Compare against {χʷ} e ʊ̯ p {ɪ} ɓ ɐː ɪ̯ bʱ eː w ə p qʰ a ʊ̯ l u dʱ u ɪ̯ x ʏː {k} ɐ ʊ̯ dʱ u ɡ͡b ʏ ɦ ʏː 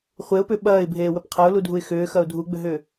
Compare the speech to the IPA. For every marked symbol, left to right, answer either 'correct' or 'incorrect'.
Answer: correct, incorrect: ʏ, incorrect: x

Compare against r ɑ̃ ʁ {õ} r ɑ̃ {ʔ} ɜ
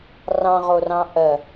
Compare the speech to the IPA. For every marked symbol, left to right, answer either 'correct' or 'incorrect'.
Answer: incorrect: o, correct

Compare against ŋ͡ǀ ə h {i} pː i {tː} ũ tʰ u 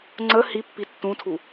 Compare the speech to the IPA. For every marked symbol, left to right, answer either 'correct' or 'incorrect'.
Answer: correct, correct

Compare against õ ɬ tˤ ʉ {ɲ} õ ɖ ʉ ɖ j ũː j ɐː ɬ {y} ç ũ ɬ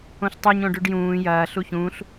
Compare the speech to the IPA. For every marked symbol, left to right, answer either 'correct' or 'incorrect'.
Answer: correct, incorrect: u

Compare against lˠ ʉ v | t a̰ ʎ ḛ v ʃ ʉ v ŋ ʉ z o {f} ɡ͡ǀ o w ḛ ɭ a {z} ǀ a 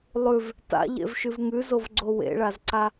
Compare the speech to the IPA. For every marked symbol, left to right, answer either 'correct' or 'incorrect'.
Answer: incorrect: v, correct

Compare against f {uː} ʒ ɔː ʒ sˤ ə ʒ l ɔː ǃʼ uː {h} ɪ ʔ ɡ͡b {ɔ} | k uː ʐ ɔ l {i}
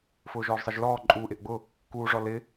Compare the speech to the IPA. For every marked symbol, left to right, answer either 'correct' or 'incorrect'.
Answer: incorrect: ʊː, incorrect: ʔ, incorrect: ʊ, incorrect: ɪ

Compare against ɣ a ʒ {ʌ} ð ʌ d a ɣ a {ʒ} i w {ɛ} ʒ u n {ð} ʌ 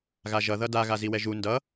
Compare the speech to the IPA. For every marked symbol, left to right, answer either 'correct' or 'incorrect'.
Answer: correct, incorrect: z, correct, incorrect: d

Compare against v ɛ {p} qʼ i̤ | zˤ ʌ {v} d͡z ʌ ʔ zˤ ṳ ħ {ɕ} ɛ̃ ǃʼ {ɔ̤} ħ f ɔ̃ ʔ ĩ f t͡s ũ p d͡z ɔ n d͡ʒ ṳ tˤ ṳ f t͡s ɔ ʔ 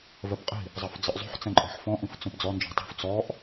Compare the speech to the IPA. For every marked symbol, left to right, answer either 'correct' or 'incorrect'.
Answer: correct, incorrect: f, incorrect: t͡s, correct

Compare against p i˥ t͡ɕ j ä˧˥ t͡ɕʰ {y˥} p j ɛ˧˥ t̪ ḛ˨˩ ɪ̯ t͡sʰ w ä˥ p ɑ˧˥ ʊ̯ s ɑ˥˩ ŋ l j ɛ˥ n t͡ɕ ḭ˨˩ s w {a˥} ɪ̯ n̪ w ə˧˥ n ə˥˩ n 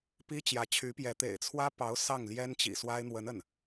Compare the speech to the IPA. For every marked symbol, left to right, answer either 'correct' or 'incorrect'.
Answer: incorrect: y˧˥, correct

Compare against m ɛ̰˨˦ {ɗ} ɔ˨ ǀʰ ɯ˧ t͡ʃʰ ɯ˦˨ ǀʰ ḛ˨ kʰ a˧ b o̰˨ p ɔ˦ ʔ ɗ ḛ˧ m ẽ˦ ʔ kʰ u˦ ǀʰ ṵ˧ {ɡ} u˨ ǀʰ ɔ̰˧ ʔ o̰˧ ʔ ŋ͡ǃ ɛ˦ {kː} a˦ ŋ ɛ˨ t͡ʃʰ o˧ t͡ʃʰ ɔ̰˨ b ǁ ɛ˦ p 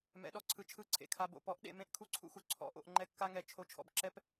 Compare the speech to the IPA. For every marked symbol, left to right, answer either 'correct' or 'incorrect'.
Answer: correct, incorrect: x, correct

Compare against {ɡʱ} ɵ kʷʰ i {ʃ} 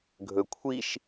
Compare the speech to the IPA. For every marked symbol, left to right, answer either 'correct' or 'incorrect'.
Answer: correct, correct

